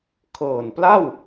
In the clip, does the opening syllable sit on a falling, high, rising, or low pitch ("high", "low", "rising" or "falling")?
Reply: low